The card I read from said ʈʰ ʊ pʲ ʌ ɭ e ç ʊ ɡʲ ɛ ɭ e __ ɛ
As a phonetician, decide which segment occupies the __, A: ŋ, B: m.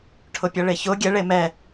B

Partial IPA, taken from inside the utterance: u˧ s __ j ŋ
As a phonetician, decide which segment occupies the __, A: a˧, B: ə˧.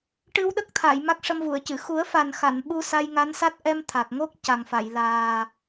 A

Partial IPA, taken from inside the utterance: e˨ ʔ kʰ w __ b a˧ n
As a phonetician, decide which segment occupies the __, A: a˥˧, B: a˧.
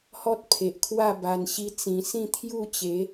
A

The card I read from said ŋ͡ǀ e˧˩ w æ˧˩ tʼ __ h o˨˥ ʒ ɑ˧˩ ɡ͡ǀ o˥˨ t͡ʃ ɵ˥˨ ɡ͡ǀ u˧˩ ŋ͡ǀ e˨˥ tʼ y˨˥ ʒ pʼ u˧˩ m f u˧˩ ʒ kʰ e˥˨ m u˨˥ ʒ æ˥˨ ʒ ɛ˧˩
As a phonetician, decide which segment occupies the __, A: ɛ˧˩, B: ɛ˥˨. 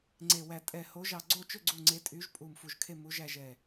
A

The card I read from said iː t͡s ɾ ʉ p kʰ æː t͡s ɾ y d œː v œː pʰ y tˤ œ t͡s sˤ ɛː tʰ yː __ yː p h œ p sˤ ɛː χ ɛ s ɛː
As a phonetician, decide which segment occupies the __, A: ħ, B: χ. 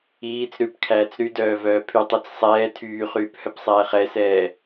B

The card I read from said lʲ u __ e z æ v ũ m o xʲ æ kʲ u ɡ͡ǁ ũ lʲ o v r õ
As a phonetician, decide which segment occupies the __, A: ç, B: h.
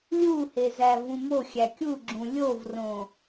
B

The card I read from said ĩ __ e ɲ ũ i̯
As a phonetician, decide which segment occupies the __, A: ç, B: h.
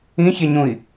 A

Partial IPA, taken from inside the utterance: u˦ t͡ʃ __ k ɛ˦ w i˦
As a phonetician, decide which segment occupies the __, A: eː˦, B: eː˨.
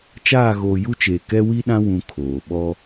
B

